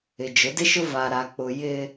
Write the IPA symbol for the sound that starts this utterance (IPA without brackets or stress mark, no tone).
ɪ